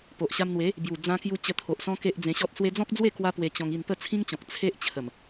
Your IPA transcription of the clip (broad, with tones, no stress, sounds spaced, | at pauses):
p o˨ ʔ ɕ a˧ m n̪ w e˨˦ | b j u˨˩ d͡z ã˧ k j u˧ t͡ɕ ə˧ t̪ʰ o˨ ʔ s ɔ̃˦ k e˦ ʔ d͡z ẽ˧ ɕ ɔ˦ t̚ s w e˧ d͡z ɔ̃˦ k̚ d͡z w e˥˧ k w a˦ p w e˧ t͡ɕ ɔ̃˧ ŋ i˥˧ n p ə˥˧ t͡sʰ ĩ˦ ŋ t͡ɕ ɔ̃˨ k̚ t͡sʰ e˦ ʔ t͡ɕʰ ə˨˩ m